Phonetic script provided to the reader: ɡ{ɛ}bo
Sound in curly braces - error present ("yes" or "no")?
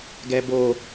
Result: no